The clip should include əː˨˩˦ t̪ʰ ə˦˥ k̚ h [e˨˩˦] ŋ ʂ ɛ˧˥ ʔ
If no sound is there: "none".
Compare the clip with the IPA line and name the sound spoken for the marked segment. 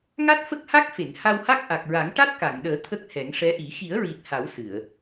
ɛ˨˩˦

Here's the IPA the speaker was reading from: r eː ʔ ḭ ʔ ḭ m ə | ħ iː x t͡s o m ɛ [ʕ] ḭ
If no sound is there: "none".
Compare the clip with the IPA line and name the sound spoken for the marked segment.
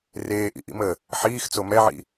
ʕ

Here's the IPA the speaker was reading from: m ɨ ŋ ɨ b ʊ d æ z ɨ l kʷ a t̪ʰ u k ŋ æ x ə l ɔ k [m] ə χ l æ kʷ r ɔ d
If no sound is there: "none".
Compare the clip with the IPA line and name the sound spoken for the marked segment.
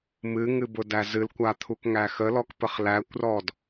p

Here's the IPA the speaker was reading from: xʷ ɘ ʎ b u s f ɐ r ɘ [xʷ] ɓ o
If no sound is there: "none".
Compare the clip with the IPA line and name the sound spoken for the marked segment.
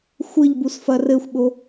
xʷ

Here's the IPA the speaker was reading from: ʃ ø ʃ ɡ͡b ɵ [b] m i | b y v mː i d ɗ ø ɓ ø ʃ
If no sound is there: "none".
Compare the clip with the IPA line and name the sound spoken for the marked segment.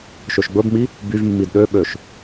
b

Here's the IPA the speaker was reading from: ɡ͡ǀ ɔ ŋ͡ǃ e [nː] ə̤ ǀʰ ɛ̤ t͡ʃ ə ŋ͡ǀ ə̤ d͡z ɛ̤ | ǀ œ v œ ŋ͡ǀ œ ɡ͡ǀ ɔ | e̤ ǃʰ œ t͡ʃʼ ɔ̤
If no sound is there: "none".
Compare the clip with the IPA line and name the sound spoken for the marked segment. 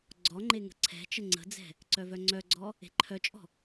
ŋ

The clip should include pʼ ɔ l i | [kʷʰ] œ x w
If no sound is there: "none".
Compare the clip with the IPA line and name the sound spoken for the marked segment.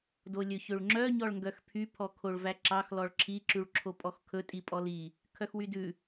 kʰ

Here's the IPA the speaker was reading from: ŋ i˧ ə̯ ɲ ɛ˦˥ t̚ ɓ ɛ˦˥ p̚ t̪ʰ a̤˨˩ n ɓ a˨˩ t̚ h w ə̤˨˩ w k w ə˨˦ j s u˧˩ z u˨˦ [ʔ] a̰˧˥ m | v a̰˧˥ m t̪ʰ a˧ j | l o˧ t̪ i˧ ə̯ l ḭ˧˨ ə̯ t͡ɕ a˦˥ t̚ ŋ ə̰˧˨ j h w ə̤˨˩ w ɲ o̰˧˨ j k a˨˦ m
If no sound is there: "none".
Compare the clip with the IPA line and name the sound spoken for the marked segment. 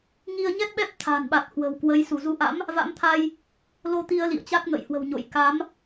ʔ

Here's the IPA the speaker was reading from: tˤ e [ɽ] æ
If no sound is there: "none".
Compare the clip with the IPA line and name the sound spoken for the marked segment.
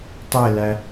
l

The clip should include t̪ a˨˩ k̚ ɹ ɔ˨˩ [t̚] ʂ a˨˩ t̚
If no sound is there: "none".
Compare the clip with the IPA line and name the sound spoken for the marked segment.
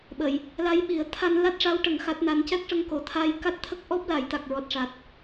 t̚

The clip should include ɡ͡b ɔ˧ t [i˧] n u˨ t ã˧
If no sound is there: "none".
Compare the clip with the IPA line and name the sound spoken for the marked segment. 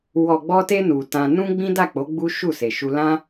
e˧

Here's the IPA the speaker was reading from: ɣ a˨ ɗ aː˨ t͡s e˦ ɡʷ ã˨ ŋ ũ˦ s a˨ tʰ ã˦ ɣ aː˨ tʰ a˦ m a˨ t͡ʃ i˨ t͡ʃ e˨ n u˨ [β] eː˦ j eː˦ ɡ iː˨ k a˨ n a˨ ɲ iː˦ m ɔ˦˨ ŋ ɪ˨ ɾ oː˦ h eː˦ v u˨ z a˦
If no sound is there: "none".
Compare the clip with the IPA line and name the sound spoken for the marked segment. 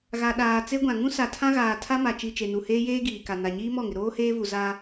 h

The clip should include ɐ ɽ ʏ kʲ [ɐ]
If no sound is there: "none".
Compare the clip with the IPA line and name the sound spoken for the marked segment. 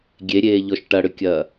ɐː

